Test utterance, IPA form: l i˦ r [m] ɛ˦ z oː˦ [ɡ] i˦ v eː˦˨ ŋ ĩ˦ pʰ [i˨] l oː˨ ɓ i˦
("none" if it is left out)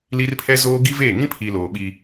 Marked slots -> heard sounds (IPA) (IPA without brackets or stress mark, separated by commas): pʰ, ɡ, i˨